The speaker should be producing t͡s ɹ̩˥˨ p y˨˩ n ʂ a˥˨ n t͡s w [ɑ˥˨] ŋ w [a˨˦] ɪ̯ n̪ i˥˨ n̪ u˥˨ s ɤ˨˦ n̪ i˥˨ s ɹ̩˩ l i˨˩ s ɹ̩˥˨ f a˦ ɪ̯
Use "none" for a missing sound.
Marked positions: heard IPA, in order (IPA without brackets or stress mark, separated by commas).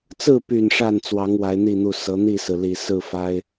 ɑ˨˦, a˨˦